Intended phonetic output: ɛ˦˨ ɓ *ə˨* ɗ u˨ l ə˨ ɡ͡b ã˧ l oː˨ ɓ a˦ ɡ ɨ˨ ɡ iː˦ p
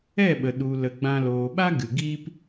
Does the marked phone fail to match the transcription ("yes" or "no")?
no